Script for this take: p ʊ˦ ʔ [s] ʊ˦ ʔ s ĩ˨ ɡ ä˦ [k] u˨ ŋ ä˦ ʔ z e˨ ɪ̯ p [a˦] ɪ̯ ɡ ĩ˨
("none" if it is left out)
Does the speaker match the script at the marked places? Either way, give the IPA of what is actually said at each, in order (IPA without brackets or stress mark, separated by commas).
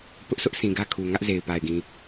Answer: s, kʰ, a˨